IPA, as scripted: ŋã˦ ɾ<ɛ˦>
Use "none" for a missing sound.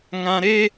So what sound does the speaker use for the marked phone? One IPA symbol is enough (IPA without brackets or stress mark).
e˦